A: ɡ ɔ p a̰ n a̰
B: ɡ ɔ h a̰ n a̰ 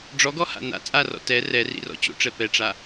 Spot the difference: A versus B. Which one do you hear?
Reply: B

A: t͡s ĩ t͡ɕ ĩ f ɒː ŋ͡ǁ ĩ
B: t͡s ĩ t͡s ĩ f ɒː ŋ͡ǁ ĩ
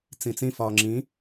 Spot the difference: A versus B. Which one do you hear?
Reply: B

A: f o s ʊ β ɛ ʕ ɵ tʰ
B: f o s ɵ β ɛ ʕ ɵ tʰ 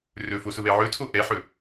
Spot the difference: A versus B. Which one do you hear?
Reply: A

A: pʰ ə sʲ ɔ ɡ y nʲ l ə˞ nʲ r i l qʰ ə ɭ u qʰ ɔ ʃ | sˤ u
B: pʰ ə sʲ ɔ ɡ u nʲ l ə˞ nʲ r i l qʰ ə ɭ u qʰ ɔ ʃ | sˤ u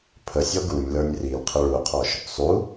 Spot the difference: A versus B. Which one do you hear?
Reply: B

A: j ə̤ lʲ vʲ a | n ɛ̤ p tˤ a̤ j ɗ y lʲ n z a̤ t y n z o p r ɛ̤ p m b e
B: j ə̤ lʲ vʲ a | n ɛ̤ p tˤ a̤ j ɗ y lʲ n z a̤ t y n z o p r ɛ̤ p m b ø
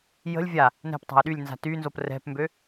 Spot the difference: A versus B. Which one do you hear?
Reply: B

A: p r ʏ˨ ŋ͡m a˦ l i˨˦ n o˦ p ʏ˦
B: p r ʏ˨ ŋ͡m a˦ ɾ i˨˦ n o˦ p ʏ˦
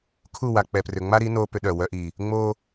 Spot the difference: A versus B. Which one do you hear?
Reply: B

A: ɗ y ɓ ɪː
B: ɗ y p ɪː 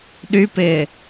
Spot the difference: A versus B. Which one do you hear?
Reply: B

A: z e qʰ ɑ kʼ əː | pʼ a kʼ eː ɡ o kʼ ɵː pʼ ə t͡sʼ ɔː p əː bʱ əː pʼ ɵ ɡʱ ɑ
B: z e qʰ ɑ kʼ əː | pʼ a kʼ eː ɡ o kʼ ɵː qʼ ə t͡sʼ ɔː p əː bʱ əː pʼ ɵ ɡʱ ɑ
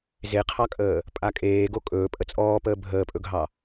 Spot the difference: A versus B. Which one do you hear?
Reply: A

